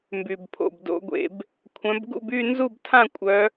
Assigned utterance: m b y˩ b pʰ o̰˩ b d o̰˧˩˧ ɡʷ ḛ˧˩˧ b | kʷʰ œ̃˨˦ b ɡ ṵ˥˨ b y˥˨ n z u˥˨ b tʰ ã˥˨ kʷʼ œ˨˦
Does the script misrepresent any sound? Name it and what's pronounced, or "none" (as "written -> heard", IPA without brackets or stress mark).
none